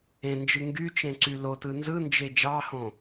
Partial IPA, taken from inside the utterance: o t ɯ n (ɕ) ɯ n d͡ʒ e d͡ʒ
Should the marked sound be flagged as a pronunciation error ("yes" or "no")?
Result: yes